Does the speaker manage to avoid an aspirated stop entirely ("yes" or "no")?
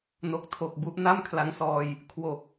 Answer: no